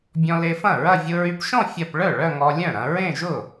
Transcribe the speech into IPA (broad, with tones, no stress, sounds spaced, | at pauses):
bʲ ɔ̃˧ l e˧ f ɐ̃˥˩ ɹ ɐ˥˧ vʲ ʊ˧ ɹ y˧ p ʃ ɔ̃˥˧ fʲ ɐ˥˧ p ɭ œ˥˩ ɭ œ˥˧ ŋ ɔ˧ lʲ œ̃˥˩ ɾ ɐ̃˧ ɹ ẽ˥˧ ʒ ʊ˥˩